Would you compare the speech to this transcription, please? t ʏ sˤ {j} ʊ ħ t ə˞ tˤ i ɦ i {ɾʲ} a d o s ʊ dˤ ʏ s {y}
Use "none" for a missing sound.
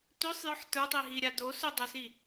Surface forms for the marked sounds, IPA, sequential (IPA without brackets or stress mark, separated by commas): j, ɾʲ, i